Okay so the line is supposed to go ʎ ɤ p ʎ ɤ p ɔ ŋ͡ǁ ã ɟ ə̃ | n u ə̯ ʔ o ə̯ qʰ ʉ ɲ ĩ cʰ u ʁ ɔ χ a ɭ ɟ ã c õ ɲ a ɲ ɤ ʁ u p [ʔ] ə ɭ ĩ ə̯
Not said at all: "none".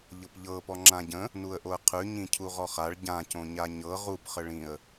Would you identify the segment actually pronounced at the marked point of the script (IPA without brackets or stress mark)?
χ